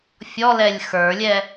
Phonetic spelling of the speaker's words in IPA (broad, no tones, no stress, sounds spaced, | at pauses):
fʲ ɔ l ɛ lʲ x ə˞ lʲ ɛ